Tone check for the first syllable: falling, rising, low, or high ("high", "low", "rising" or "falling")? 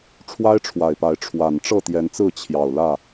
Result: high